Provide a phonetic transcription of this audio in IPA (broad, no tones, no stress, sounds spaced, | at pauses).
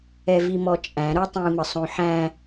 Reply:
ɛ v i m ɔ t͡ʃʼ æ̃ ɾ o tˤ ĩ m ə sˤ õ ħ æ̃